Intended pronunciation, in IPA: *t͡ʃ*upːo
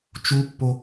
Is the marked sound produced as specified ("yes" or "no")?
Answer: yes